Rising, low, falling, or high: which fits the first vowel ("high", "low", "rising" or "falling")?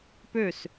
falling